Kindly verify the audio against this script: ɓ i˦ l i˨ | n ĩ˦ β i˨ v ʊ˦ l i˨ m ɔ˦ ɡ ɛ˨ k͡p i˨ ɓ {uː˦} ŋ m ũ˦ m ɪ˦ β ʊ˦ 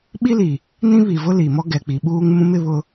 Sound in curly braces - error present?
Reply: no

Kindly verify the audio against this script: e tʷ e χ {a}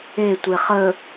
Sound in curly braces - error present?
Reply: yes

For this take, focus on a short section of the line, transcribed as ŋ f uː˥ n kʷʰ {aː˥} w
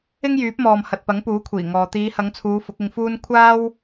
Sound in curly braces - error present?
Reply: no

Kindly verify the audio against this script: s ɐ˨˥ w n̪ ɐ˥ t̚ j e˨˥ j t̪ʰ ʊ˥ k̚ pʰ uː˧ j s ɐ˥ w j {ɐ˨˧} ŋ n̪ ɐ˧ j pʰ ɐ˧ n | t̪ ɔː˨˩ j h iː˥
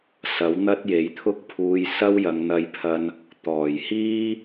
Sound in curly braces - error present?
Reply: no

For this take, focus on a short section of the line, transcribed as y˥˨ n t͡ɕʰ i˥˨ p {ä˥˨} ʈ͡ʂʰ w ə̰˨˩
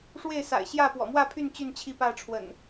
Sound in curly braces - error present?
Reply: no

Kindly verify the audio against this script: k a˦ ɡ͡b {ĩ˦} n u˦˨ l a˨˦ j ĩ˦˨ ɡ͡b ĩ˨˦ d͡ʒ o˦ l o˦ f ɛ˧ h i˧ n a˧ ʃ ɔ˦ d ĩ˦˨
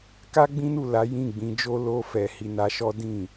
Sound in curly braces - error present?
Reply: no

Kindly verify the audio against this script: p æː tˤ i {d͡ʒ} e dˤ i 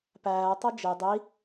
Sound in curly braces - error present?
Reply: no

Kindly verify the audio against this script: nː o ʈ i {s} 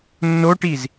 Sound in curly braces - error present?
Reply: yes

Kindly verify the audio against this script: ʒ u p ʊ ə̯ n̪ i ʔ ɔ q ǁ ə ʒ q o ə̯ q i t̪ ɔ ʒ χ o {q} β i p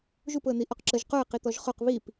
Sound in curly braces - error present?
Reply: no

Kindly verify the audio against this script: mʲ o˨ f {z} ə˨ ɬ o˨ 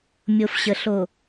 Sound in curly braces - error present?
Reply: yes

